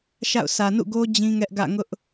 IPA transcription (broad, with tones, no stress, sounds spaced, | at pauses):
ʃ a̰˦˨ ʊ̯ sʰ ä˨ n ṵ˦˨ ɡ o˦ d͡ʑ ĩ˦ ŋ ɛ˦ ʔ ɡ ä̰˦˨ ŋ ʊ˦ ʔ